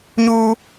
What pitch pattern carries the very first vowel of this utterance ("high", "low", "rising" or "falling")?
high